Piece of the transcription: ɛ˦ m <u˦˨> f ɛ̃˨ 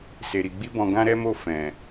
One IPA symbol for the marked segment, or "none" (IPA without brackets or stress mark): o˦˨